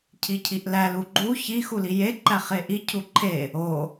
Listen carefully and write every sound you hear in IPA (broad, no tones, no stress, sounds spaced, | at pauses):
cʰ i cʰ i ʔ l æ l u ɡ͡ǃ u ç i x u l i j e ǃ æ χ e ʔ i cʰ u ǃʰ e | o